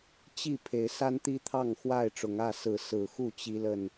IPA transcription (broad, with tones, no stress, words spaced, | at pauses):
t͡ɕi˥˨pʰe˨˦ɪ̯ sa˦nt̪i˦t̪ʰɑ˥˨ŋ xwa˥˨ɪ̯ʈ͡ʂʊ˨˦ŋä˥˨ sɹ̩˨˦sɹ̩˨˩xu˥˨ t͡ɕi˦lə˥˨n